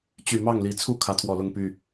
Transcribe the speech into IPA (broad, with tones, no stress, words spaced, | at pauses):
t͡ɕy˨˩mɑ˥˨ŋli˨˩ t͡sʰu˥˨ kʰä˨˦t̪ʰwɔ˨˩lʊ˥˨ŋ py˥˨